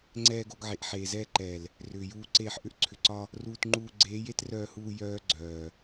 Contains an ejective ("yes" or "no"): no